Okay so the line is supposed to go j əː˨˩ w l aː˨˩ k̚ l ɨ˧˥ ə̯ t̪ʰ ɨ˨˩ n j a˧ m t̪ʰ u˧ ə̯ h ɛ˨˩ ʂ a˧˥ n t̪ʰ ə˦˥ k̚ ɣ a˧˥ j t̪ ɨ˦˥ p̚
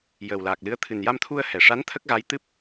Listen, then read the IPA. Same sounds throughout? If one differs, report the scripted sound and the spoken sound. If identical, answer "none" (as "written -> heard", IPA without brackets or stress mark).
none